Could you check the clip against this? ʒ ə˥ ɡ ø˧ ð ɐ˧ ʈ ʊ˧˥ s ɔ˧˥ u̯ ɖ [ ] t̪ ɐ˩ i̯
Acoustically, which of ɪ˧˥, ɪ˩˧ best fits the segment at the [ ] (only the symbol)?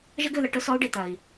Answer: ɪ˩˧